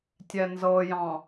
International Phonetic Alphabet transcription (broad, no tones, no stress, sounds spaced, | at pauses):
tʲ ɛ n z ɤ j ɑ̃